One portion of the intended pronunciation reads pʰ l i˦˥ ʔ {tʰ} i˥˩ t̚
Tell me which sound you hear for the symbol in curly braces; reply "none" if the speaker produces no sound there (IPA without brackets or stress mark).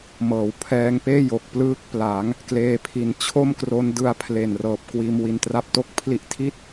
tʰ